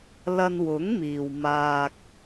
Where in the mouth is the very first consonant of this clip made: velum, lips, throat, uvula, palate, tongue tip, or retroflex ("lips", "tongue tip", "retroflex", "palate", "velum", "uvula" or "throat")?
tongue tip